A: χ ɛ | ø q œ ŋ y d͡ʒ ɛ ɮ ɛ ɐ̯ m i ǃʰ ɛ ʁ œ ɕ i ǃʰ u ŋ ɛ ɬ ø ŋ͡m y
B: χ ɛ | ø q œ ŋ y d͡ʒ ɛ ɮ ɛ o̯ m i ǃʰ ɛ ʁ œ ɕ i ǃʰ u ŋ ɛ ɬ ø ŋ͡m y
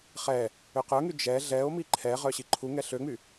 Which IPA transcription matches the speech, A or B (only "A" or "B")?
B